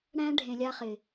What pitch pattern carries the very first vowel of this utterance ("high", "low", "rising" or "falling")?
high